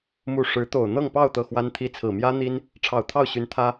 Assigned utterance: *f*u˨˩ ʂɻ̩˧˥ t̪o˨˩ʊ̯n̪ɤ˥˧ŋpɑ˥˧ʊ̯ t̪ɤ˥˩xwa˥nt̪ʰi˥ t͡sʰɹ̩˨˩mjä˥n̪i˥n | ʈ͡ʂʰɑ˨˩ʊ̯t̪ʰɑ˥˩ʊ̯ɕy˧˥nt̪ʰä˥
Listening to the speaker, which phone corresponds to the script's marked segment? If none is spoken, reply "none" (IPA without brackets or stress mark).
m